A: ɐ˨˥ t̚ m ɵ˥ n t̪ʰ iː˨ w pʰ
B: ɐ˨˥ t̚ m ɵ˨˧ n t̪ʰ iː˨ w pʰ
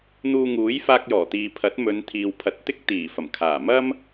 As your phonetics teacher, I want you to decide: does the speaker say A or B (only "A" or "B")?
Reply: B